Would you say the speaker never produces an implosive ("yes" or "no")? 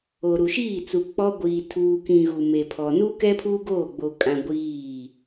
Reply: yes